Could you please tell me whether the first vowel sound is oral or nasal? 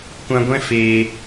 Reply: nasal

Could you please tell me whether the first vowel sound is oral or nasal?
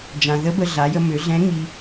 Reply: nasal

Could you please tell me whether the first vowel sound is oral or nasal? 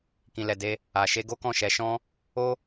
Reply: nasal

